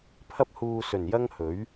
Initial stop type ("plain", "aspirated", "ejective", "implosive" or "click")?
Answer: aspirated